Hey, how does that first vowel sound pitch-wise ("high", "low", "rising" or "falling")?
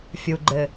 low